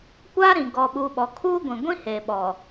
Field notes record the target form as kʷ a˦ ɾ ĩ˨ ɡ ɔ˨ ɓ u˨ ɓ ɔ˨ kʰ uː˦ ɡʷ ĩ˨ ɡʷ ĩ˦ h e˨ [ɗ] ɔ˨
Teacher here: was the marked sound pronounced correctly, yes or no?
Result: no